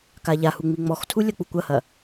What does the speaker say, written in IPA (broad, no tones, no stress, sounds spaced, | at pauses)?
k a ʎ a h u ŋ͡m i ŋ͡m ɔ x tʰ u lʲ ɐ k͡p u kʷ ɐ h ɐ